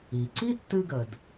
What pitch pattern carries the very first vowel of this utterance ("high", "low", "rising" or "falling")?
low